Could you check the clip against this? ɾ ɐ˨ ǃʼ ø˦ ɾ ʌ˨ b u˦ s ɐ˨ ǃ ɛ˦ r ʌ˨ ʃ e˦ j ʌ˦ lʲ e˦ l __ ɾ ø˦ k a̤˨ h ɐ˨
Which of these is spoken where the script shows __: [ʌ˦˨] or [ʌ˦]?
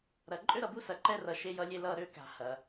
ʌ˦˨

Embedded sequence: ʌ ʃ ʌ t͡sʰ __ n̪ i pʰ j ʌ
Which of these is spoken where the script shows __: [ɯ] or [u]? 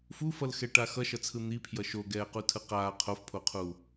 ɯ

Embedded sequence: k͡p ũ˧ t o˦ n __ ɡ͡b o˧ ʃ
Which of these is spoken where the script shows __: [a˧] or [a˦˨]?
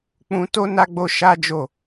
a˧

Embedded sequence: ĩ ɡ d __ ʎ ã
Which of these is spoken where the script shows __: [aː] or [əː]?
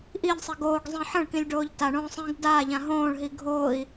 aː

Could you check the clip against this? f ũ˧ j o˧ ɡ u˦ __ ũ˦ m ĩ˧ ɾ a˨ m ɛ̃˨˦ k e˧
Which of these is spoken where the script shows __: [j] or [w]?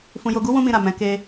w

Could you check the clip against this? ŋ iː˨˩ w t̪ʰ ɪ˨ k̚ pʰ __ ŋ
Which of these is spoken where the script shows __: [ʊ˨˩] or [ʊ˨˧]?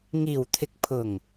ʊ˨˩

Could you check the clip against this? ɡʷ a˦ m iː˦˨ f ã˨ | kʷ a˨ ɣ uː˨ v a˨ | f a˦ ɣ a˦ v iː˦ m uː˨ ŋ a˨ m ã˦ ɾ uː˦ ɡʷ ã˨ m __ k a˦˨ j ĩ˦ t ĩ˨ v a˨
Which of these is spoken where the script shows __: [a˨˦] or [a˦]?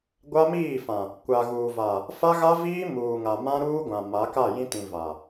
a˨˦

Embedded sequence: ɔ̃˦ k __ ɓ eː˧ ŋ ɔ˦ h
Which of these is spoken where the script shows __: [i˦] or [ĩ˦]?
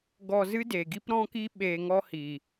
i˦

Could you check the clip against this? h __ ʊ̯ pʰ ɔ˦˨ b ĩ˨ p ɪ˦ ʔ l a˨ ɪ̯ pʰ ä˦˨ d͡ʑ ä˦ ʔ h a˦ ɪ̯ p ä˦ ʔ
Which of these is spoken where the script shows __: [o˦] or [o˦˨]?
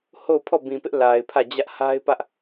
o˦˨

